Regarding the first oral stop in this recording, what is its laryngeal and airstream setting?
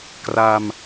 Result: plain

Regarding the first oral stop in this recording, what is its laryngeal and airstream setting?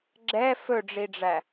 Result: click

